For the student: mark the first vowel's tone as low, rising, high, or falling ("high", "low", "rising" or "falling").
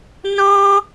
high